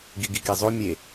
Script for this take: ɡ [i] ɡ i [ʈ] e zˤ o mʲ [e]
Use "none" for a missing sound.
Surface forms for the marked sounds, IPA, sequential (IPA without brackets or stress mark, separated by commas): i, k, e